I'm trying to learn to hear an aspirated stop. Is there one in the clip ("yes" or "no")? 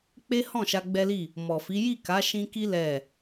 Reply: no